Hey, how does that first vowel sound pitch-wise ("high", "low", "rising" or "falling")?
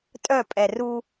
falling